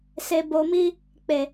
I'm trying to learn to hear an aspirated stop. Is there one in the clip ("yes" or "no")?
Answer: no